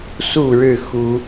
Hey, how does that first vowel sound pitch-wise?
falling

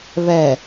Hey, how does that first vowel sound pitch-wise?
low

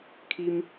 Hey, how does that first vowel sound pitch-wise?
high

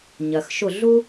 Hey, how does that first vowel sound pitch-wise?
low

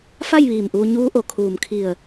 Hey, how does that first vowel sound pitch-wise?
falling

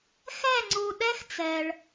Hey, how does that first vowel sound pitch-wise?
falling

